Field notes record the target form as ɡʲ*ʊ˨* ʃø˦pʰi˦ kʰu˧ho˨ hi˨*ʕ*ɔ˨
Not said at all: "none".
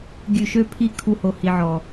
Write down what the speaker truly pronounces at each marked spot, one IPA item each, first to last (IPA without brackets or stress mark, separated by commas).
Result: ʉ˨, ʕ